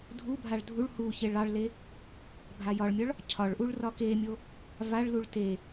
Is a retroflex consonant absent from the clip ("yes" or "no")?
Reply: no